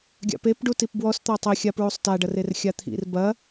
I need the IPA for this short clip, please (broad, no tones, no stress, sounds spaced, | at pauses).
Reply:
ɡʲ a̰ p e p ɖ u t i p b w ɔ s t̪ ɔ tˤ e xʲ a p ɹ u sˤ t a ɖ ɐ r e r xʲ a t̪ʰ ḭ r b ɐ